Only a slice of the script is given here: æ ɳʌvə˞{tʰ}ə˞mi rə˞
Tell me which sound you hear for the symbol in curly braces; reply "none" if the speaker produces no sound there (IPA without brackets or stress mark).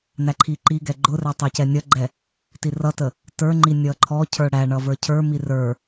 cʰ